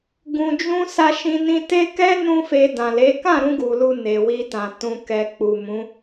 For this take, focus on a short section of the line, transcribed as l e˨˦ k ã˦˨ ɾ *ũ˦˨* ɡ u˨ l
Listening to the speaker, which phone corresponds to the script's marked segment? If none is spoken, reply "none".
ũ˧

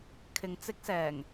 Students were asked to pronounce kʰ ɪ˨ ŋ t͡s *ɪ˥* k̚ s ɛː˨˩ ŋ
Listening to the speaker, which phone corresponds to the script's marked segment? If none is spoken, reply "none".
ɪ˥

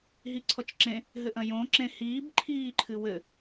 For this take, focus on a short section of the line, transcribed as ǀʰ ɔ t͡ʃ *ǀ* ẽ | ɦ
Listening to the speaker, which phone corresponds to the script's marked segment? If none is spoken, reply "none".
ǁ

